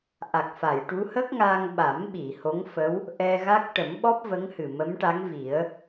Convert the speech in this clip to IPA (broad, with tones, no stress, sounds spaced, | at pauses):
ʔ a˨˩ k̚ f a˨˩˨ j ʈ u˧˥ h ə˦˥ k̚ ŋ a˧ ŋ ɓ a˨˩˦ m ɓ i˨˩˨ h o˧˥ ŋ f ə˧˥ w | ʔ ɛ˧ ɣ a˦˥ k̚ ʈ ə˨˩˦ m ɓ ɔ˦˥ p̚ v ə˧˥ ŋ h ɨ˨˩ m ə˧˥ m ʈ a˧˥ ŋ v i˨˩˦ ə̯